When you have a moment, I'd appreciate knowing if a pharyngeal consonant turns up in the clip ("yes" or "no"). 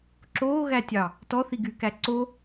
no